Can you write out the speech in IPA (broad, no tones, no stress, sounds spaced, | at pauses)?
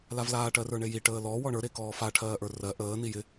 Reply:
l a v l aː ʈ ɜ r ə˞ ɳ e j i ʈ əː l ɔ w ɔ ɳ ə˞ ɾ e k ɔː f a ʈʰ ɜː ʔ ə˞ r ɜ ʔ əː n i j ɪ